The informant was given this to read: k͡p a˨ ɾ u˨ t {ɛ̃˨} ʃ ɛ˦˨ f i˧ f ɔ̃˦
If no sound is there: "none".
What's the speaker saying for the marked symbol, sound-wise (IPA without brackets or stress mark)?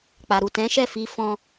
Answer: ɛ̃˨˦